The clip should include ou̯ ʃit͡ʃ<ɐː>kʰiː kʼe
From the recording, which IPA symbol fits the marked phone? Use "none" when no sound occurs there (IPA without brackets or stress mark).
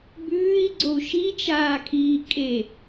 aː